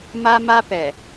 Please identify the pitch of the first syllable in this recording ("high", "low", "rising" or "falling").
high